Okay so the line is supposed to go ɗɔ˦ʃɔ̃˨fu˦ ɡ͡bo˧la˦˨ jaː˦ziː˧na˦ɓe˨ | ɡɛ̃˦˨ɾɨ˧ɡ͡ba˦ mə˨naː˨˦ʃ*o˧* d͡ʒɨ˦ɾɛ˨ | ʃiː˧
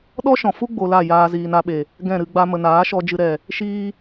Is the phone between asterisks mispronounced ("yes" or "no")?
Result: yes